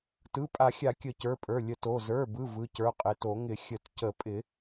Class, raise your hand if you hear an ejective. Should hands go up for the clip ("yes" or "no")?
yes